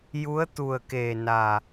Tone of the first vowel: rising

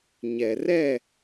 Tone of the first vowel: low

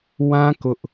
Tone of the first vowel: high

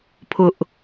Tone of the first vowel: high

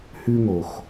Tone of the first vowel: high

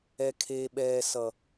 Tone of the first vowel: high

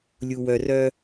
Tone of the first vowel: low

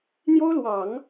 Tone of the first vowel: high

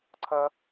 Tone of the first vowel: high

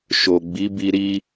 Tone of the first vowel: low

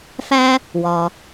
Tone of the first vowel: high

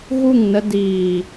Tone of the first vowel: falling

